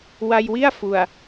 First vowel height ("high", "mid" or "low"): low